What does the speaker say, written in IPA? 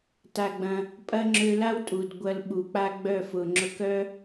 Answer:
ta˧ɡ͡bɐ̃˧ | pʼɐ˦ŋ͡ǁø˧la˦w tʼu˨d ɡʷɐ˧lɓu˨k͡pa˦ ɡ͡bœ˦˨fʊ˨ŋ͡ǁʊ˧k œ˦

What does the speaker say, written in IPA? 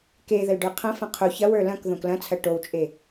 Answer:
ke ðəlɖə˞qʰɐ̃fɐ̃ qʰo çɐwə˞ lɐ̃k ðõklɐ̃t͡sʰɐ ʈowt͡ʃʼe

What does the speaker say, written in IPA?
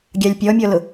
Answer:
ɡʲɑlʲpʲɔmʲɔlʊ

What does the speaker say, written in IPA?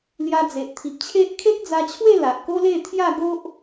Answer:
lja˧d͡ze˨ʔt̪ʰi˨p̚t͡ɕʰe˦ʔ kʰe˦k̚d͡za˧t͡ɕʰwe˥˧ la˨ʔko˦le˥˧ t̪ʰja˥˧ɡo˦ʔ

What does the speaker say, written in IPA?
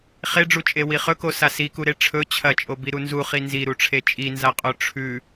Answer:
χeɖ͡ʐut͡ʃʼewi χɵkosa sikuɾe ʈ͡ʂʰɵ t͡ɕʰɐt͡ʃʼobiɾu nzuχi nziɾuʈ͡ʂʰe t͡ʃʼinzaqʼo ʈ͡ʂʰʉ

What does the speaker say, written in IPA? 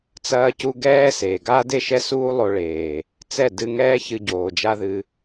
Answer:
t͡sɐː˧cu˧ ɡɛː˦seː˨ ɡaː˦de˦˨ʃɛ˦ suː˦lˠo˧ ɭeː˨ | t͡sɛ˦˨dɨ˧ŋɛː˦ çɨ˧ɟoː˨d͡ʒa˦ ðɨ˧

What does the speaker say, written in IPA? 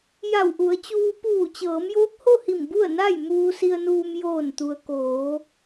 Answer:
ja˧˩wʔu˩˧ə̯t͡ɕuː˧ puː˧˩t͡ɕɤː˩˧mjoː˧˥k̚ ho˥˨hi˧˩m bu˥˨ə̯na˥˨j muː˧si˧ə̯nuː˧m joː˧˩nt̪u˩ə̯koː˩˧

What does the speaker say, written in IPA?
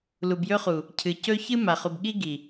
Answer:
lu˨bjɵ˧χu˨ | cʰɨ˨cɵ˦ çɨ˦ma˨χu˨bɠi˦ ɡi˨

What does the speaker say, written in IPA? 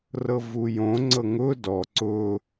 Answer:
rɤvujõ ŋ͡ǀɤŋʊː dɔ ǀʊː

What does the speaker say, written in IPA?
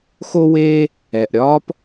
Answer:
xo˥weː˥ | ɛ˩ʔɾʲɒː˥p

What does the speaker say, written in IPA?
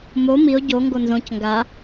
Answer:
mo mio̯ ɟo ŋɡonzõc ŋɡa

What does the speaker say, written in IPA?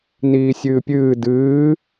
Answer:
niːsʲɨːpʲɨː dɨː

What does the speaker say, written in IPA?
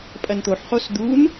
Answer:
pʼɐnt̪oħχos d̪un

